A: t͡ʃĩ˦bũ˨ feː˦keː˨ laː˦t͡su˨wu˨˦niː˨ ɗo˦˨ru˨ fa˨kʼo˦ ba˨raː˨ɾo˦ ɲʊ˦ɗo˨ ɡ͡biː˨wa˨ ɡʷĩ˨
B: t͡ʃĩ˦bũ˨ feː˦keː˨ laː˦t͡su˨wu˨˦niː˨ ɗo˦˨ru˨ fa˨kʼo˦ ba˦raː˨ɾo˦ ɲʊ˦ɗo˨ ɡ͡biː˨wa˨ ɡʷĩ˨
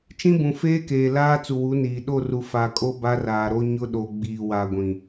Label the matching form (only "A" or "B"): B